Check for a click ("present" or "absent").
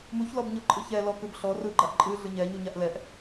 present